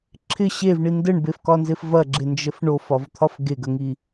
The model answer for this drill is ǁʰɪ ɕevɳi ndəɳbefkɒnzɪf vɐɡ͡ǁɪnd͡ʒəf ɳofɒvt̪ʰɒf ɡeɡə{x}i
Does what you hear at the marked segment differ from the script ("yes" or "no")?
yes